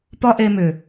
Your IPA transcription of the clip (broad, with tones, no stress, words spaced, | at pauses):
pɒ˦ʔe˧mʏ˨